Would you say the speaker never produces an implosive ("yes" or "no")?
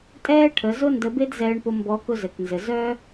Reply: yes